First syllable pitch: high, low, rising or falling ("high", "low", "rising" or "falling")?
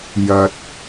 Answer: low